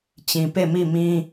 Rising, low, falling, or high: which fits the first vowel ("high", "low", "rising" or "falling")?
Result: low